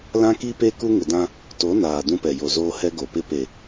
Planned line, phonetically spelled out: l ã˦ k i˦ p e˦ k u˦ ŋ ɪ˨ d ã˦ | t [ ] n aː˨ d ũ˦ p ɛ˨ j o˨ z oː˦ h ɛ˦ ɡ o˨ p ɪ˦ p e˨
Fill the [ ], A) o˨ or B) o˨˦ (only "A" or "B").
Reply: B